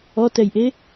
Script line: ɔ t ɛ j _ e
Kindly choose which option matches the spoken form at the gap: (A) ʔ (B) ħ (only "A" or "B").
A